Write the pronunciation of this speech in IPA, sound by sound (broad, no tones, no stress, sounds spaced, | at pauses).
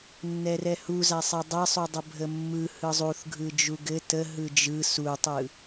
nː ɛ r ɛ h u z a sˤ ɛ dˤ ɛ sˤ u dˤ ə bʱ ə mː ɯ h ɯ zˤ u θ ɡʱ ɯ d͡ʒ u ɡ ɘ t ə ɦ ɯ d͡ʒ ɯ s u tˤ ɯ